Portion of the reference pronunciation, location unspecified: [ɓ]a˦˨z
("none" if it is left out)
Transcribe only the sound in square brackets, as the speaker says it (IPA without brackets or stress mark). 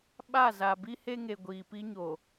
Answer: ɓ